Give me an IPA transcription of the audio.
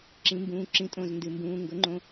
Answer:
ǁ ĩ˩˥ m b ũː˩˧˩ ǁ ĩ˩˥ tʼ õ˩˧˩ z n d ɨ˩˧˩ m b ũː˩˧˩ ŋ ɡ ɵ˩˥ ŋ͡ǃ õ˩˧˩

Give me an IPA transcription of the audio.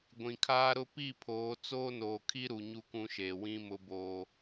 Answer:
ɡʷ ĩ˨ kʰ aː˦ ɾ ʊ˦ p i˦˨ pʰ oː˨˦ t͡s oː˦ n oː˨ kʰ i˦ ɾ u˨ ɲ u˦ k ũ˦ ʃ eː˨ w ĩ˦ m ʊ˦ b oː˦

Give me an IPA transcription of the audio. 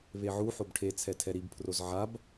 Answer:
β e ʕ u ħ o b ʈʰ e t͡sʰ ɛ tʰ ɛ ɾ i b pʰ r o z ʕ a b

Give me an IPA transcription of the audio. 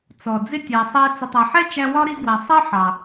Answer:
t͡s ɔ˩ d͡z ɪ˥ tʲ æ˨ sˤ ɛ˦ t͡s ə˨ tˤ æ˨ ħ ɛ˥ t͡ʃ æ˦ w ɒ˥ ɾ i˦ ɡ w æ˨ sˤ ɜ˥ ħ ɑ˩

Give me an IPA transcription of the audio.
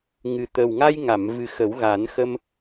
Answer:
ŋ ɨ˨˩ t̪ ə˨˩ w ŋ a˧ j ŋ a˨˩˨ m v ɨ˨˩ x ə˨˩˦ w ɣ a˨˩˦ n x ə˧ m

